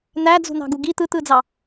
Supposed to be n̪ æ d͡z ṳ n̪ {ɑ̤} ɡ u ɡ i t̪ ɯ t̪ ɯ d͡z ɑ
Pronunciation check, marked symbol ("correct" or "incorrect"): correct